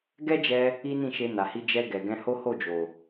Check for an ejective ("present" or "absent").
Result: absent